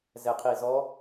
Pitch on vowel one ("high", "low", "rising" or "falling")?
low